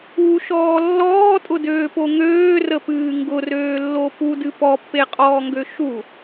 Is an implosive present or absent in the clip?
absent